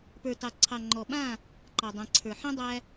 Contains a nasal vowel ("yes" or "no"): yes